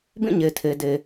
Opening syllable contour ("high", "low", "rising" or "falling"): falling